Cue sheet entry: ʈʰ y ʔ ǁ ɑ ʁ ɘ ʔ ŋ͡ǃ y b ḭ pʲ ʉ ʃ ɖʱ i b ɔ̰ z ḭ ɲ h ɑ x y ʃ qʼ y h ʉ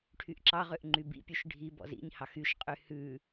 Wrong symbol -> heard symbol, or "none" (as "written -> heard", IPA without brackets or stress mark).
ɘ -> ø